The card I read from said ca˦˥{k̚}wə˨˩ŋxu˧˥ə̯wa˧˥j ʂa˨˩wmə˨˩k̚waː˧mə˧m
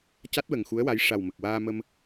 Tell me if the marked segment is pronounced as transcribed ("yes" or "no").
no